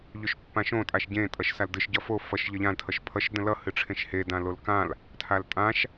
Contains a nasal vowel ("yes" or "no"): yes